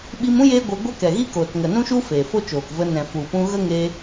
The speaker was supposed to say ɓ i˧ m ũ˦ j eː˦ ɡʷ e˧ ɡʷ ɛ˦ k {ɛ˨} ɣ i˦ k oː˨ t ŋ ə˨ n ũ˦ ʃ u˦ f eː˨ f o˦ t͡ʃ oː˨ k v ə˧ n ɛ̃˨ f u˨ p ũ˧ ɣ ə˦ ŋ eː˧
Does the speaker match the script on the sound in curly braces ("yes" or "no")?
yes